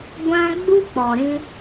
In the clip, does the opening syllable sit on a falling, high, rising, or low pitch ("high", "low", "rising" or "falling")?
high